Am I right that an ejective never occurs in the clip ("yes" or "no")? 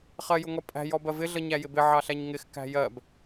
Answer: no